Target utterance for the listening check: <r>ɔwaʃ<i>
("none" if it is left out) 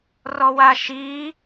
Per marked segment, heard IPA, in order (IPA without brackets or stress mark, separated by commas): r, i